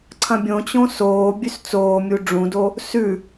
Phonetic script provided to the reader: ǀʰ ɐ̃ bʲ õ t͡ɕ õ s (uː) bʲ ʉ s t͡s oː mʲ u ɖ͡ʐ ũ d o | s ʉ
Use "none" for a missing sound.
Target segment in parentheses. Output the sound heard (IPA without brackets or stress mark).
oː